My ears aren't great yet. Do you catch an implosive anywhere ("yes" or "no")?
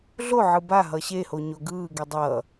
no